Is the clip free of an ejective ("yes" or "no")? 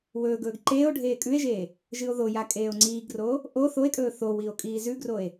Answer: no